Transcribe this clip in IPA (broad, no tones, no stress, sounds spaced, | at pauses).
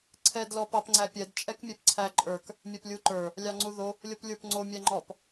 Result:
ǀʰ ɛ d l ɔ p ɑ p ŋ͡ǀ æ pʲ ɛ d t͡ʃʼ ɛ k mʲ ɛ p ǀʰ æ ǃʼ ə˞ k | mʲ æ p lʲ u ǃ ə˞ | lʲ ɑ ŋ͡ǀ u ð o | lʲ o p lʲ ə˞ p ŋ͡ǀ o mʲ æ ŋ͡ǃ ɔ p